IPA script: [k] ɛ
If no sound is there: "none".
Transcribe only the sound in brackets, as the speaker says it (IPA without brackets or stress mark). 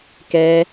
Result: k